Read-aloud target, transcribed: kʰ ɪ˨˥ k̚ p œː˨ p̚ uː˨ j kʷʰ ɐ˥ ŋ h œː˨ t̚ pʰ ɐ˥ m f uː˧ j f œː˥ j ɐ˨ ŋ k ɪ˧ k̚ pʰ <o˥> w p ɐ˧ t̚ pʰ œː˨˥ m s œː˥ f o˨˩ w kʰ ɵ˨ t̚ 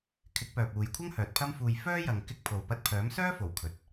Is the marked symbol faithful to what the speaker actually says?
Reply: no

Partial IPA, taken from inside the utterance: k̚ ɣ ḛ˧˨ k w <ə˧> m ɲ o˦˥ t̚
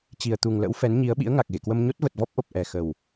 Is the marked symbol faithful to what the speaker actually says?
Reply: yes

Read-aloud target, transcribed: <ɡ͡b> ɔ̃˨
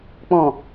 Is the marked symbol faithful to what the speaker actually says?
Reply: no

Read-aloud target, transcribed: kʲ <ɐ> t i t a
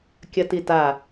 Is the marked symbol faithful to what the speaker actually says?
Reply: yes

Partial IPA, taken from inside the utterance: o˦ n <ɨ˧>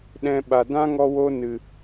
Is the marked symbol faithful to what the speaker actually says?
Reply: no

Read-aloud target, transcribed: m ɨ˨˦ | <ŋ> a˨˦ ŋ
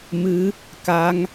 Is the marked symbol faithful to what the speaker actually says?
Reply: no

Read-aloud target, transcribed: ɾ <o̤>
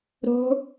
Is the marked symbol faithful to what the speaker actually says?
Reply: yes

